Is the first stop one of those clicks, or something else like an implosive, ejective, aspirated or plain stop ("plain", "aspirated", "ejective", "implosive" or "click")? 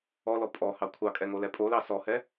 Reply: ejective